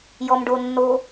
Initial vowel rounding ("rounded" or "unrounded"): rounded